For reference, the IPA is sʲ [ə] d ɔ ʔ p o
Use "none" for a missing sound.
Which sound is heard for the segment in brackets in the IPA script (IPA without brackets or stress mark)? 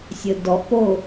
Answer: ə